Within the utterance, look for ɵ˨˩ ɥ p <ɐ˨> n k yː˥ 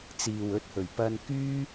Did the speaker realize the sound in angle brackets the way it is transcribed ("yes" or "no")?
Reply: no